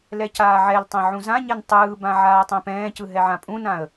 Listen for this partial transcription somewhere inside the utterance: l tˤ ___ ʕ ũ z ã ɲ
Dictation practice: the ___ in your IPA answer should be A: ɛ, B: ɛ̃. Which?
B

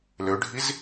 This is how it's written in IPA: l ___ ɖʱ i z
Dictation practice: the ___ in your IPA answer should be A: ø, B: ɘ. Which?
A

